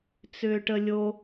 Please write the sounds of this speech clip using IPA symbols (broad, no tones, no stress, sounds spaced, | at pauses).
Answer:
t͡s ʏː ʈ ə lʲ o